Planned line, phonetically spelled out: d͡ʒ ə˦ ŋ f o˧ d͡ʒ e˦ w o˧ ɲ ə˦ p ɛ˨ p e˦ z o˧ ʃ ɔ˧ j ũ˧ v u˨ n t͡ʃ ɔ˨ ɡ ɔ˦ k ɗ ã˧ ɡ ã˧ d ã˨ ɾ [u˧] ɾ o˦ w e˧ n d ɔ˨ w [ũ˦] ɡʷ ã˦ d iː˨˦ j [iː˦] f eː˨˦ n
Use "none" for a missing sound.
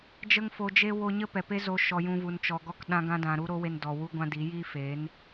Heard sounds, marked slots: u˦, u˦, iː˦

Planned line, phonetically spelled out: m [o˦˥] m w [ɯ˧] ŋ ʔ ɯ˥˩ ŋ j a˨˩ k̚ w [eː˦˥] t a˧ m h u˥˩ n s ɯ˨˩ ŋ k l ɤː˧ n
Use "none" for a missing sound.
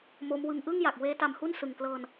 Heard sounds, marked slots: o˦˥, ɯ˧, eː˦˥

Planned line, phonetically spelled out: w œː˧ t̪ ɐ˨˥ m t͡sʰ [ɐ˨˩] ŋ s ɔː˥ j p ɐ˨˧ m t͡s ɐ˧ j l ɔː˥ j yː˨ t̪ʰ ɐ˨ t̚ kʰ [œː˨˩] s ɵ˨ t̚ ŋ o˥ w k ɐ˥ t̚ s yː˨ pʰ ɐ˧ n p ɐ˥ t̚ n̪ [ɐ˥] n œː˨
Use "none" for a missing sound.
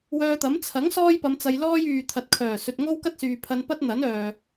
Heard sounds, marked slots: ɐ˨˥, œː˨˩, ɐ˨˥

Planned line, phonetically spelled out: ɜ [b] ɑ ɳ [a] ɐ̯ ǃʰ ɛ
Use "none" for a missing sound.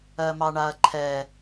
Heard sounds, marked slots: m, a

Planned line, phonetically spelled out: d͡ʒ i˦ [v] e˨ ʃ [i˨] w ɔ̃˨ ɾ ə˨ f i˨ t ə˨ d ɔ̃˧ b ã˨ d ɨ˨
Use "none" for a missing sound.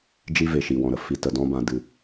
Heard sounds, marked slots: v, i˨

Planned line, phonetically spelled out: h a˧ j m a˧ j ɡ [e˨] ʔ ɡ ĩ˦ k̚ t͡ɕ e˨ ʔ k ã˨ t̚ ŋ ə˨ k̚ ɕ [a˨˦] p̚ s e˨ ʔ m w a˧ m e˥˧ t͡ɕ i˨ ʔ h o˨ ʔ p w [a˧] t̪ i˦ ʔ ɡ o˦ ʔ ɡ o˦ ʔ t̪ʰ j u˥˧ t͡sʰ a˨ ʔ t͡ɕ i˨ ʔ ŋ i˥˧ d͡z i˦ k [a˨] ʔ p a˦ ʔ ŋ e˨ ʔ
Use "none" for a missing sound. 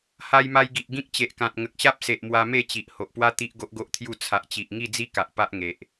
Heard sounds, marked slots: i˨, a˦, a˦, a˨

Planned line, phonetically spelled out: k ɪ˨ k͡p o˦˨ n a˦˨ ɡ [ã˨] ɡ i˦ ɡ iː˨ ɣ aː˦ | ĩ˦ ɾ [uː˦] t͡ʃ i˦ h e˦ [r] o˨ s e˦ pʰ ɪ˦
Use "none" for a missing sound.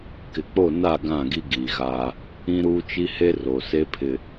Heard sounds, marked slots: ã˦˨, uː˦, r

